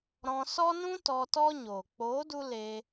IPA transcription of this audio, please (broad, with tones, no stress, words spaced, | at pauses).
ɾɔ̃˧sɔ˦nũ˦ tɔ˧ tɔ˦ ɲoː˨ k͡poː˨˦du˧ leː˧